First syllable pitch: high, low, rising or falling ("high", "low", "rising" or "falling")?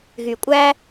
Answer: low